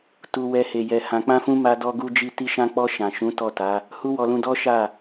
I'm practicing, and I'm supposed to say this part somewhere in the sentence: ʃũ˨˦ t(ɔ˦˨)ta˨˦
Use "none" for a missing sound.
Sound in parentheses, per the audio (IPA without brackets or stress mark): ɔ˦˨